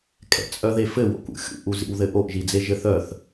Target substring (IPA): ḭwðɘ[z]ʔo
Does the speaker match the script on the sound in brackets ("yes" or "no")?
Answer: no